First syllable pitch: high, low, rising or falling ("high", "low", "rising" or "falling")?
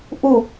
falling